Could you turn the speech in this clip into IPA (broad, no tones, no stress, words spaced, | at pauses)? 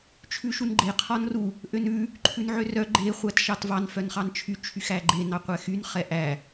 t͡ʃʰʉʃunɡ͡ǃe qʰɔnru | ʔønʉ | ǃʰʉnʕørœ ɡ͡ǃe χʷætʃɑtvɑn fœnχɑnt͡ʃʰy t͡ʃʰyxæɡ͡ǃe nɑqʷɛxyn χɛʔæ